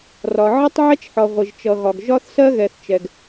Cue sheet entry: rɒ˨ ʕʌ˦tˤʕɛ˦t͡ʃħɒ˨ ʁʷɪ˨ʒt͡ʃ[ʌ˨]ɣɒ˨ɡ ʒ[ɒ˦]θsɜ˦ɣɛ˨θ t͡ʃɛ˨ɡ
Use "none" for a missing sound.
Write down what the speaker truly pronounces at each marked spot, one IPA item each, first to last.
ʌ˨, ɒ˦

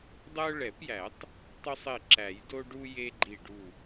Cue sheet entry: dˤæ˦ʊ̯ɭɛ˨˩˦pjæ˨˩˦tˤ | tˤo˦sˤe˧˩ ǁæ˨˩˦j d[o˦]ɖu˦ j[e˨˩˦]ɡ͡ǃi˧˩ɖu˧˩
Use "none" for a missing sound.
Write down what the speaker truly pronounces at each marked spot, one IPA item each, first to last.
o˦, e˦

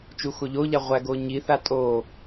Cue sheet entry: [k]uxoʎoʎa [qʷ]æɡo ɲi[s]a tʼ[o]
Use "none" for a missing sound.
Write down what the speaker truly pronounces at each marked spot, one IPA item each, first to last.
t͡ʃ, ʁʷ, θ, o

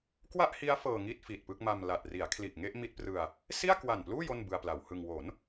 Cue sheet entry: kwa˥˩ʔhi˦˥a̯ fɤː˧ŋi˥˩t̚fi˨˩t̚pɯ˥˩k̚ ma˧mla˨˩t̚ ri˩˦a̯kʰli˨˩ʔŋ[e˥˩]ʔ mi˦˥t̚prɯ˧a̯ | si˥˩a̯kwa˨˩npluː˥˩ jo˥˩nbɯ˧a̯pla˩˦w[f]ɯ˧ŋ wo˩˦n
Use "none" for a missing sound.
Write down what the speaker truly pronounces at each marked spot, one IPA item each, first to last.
e˥˩, h

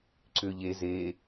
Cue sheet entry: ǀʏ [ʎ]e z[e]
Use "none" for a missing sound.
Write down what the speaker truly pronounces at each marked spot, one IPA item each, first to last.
ʎ, e

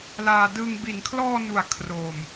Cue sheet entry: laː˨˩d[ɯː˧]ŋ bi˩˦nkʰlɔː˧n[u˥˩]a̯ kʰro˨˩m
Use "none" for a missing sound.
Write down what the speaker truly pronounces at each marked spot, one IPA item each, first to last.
ɯ˧, u˩˦

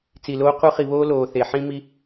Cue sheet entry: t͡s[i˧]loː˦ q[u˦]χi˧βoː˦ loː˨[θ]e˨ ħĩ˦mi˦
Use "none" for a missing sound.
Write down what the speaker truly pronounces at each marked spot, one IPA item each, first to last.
i˨, u˦, θ

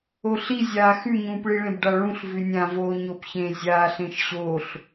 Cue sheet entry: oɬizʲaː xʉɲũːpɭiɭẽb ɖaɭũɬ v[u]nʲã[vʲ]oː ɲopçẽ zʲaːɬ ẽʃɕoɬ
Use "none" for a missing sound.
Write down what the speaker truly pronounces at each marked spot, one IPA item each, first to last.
ʉ, v

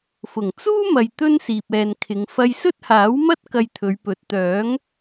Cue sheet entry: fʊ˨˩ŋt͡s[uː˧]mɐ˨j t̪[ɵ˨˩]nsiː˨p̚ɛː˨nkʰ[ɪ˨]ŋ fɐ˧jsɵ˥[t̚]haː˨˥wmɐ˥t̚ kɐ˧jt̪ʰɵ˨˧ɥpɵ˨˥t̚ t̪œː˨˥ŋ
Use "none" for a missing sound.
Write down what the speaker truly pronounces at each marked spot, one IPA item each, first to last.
uː˥, ɵ˥, ɪ˨˧, t̚

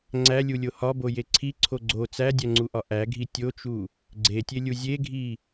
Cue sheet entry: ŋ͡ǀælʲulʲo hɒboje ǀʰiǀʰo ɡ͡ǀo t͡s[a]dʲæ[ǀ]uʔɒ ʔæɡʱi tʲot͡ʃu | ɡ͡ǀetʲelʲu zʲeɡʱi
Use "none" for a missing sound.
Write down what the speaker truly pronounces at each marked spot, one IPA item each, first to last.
æ, ŋ͡ǀ

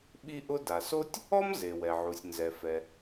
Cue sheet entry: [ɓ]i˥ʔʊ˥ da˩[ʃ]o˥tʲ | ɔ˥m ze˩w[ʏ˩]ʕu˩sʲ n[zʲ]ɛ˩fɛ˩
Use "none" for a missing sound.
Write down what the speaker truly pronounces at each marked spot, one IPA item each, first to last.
ɓ, s, ɛ˩, z

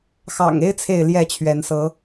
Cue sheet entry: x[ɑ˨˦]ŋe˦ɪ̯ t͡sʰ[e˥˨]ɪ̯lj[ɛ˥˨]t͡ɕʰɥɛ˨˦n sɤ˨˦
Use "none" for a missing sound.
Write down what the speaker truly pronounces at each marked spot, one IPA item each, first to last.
ɑ̰˨˩, e˥˨, ɛ˥˨

